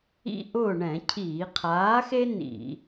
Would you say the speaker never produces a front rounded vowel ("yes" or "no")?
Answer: yes